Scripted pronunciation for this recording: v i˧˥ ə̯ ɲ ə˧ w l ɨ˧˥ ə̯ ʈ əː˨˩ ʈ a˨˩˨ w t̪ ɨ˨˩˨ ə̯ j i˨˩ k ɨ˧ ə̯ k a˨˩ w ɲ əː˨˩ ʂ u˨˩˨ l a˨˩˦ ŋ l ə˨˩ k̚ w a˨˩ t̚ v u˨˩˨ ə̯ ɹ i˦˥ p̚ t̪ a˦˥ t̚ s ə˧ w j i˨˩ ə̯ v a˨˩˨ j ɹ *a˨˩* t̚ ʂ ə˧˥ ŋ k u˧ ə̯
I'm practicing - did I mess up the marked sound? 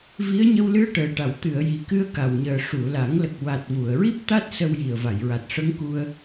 no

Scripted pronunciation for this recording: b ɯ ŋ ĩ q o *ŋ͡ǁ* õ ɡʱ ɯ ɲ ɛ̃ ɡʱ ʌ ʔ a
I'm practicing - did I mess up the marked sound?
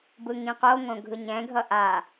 yes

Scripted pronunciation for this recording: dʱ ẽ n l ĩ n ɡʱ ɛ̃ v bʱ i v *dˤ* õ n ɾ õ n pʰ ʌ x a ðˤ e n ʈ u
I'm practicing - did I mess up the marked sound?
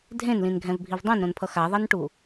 no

